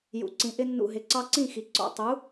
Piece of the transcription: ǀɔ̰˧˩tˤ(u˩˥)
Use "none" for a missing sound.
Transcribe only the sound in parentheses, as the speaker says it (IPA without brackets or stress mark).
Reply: u˩˥